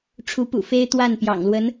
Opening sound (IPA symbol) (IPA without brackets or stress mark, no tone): ʈ͡ʂʰ